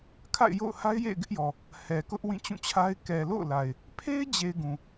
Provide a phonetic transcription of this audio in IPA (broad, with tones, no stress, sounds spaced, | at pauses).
kʰ a̰˦˨ ɪ̯ j o̰˦˨ ʊ̯ h a˦ ɪ̯ j ḛ˦˨ ɪ̯ ɡ ɪ˦ ʔ j ɔ˨ | h ɛ˨ k ʊ˦ ʔ w ĩ˦˨ t͡ɕ ũ˦˨ t͡ɕʰ a˦ ɪ̯ k ɛ˨ l o̰˦˨ ʊ̯ l a˨ ɪ̯ | pʰ e˦ ɪ̯ d͡ʑ e˨ ɪ̯ ɡ ũ˨